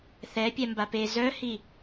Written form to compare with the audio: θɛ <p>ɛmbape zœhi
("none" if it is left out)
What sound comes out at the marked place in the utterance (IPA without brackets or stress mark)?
pʲ